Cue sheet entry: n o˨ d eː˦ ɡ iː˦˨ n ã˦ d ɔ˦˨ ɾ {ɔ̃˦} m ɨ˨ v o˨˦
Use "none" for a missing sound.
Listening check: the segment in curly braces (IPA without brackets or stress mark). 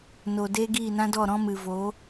ɔ̃˦